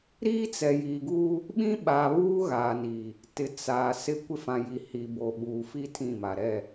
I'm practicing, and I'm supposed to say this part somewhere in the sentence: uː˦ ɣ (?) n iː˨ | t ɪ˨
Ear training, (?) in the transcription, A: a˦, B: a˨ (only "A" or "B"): B